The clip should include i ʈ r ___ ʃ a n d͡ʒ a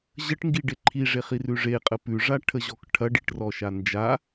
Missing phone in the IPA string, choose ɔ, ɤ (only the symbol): ɔ